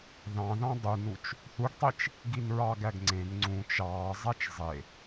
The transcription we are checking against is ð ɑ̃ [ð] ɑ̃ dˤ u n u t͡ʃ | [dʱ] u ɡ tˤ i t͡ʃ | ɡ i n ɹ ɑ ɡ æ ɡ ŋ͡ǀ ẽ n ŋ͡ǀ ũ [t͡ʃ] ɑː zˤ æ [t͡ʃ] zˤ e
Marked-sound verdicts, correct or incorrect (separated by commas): correct, incorrect, correct, correct